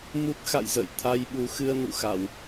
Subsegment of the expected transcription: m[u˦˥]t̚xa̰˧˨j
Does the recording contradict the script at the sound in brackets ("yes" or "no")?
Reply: no